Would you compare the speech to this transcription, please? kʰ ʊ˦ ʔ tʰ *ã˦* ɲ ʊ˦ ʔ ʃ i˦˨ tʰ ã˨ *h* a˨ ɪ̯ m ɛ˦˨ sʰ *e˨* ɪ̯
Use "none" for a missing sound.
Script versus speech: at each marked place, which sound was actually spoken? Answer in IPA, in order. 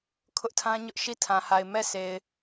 ã˦, h, e˨

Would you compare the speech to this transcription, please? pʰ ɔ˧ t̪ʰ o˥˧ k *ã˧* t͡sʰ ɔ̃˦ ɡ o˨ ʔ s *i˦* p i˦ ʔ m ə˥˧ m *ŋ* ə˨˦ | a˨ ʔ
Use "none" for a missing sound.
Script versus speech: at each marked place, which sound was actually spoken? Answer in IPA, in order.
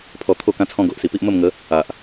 ã˦, i˨˩, ŋ

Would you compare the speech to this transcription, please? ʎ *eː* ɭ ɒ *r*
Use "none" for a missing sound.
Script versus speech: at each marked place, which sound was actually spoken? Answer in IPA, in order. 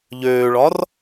øː, r

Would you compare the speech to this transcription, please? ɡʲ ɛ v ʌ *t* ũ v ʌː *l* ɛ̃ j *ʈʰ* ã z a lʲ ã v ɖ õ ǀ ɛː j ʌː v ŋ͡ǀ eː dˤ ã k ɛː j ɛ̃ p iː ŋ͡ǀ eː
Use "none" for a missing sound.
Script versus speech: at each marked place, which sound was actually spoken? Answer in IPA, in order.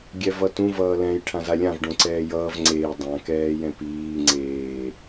t, l, ʈʰ

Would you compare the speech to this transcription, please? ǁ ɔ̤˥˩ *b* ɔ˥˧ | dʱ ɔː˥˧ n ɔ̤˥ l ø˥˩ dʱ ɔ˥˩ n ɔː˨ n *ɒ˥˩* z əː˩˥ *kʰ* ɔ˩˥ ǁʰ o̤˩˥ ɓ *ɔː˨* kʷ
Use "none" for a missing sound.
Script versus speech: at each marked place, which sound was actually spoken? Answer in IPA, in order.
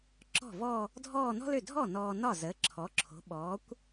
v, ɒ˥˩, ǁʰ, ɔː˩˥

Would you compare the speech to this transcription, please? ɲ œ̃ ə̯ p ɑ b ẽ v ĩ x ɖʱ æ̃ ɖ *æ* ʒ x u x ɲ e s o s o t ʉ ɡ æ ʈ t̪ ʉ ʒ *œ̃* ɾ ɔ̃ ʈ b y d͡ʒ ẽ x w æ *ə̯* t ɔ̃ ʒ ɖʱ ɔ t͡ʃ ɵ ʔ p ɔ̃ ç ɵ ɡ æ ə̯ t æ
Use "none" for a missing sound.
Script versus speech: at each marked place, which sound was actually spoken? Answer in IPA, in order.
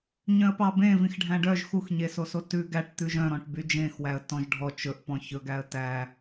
œ, œ̃, ə̯

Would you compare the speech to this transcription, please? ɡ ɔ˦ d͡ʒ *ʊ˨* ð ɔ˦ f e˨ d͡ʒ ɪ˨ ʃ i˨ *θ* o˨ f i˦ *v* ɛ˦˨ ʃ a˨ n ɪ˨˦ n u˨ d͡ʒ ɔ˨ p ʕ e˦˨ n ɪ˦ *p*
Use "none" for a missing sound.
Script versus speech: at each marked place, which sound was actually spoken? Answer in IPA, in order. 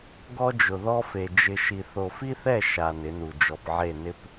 ʊ˨, θ, θ, p

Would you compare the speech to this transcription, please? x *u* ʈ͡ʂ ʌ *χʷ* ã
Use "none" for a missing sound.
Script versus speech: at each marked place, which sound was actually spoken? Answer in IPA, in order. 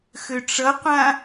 ø, qʷ

